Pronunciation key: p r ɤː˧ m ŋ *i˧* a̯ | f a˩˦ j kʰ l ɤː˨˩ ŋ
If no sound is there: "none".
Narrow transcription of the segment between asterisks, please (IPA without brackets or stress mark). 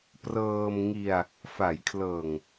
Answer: i˧